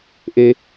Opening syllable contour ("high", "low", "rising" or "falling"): high